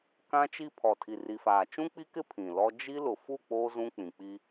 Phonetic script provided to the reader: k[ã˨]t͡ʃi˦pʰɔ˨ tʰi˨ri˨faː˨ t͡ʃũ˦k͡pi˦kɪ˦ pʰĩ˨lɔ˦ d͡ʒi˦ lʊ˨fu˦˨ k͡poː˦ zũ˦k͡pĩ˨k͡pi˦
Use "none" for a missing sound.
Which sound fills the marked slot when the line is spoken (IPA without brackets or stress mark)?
ã˦